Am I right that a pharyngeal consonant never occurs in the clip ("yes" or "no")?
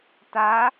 yes